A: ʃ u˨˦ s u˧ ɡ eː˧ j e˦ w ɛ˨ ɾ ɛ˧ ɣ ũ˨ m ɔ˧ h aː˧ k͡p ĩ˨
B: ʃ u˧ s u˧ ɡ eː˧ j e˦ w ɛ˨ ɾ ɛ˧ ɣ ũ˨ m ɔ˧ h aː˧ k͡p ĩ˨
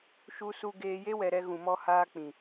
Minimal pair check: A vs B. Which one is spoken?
B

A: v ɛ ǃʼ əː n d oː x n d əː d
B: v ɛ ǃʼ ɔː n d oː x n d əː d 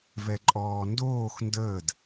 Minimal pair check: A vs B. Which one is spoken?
B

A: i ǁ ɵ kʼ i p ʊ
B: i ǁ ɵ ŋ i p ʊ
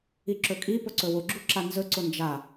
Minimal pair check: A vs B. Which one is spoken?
A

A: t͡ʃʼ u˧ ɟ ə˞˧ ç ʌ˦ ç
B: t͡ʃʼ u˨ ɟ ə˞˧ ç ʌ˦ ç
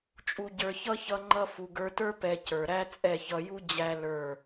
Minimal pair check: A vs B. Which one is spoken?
A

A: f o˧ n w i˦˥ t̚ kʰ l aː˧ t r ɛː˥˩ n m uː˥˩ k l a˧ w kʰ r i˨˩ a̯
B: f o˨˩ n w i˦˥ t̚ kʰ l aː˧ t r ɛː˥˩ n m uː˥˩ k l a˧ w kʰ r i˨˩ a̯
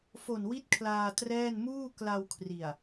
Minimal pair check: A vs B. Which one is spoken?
B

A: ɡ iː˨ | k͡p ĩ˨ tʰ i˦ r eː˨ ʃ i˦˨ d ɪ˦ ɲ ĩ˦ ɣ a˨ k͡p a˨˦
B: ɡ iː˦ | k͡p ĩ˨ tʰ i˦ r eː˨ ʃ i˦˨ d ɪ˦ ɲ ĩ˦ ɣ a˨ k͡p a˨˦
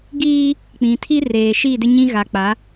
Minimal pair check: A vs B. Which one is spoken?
B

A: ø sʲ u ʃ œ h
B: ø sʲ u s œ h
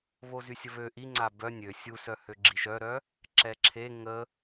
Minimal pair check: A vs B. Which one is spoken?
B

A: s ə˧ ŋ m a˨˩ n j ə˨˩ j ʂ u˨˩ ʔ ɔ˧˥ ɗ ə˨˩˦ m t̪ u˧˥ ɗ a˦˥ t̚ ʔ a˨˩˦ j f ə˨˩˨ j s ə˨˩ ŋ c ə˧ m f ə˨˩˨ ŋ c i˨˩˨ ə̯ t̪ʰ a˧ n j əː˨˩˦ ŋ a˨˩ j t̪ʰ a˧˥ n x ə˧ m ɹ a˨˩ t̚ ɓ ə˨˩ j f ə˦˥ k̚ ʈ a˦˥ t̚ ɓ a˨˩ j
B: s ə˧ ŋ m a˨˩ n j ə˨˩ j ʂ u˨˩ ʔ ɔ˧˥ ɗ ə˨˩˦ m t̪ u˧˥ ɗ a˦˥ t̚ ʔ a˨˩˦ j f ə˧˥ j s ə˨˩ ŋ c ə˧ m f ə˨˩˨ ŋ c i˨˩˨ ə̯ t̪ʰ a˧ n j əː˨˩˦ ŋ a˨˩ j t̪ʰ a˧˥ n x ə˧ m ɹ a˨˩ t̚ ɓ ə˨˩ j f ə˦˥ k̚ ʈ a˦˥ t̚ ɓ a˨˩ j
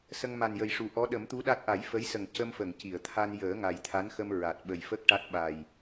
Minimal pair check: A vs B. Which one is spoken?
B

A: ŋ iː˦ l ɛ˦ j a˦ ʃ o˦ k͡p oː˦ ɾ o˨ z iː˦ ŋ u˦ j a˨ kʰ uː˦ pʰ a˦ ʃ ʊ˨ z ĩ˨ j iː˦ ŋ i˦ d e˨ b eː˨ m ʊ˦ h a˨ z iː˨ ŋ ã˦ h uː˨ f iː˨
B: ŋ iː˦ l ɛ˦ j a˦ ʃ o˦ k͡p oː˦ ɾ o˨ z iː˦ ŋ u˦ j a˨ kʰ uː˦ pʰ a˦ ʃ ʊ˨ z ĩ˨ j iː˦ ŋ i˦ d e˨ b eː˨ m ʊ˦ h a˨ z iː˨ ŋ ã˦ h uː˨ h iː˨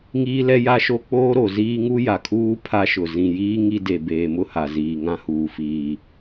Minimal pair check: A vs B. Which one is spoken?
A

